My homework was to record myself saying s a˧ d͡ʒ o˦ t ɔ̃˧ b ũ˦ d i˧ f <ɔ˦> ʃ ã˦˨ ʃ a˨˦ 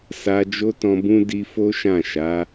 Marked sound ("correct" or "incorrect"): incorrect